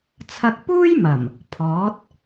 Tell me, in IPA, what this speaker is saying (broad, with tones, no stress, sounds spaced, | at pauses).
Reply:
t͡sʰ ɐ˧ k̚ p uː˥ j m ɐ˨˩ m | pʰ ɔː˨˥ t̚